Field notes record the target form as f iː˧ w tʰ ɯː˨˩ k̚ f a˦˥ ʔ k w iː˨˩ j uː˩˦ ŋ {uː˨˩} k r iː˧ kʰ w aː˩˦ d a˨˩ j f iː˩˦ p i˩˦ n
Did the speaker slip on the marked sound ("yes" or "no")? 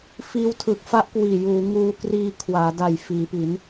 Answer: yes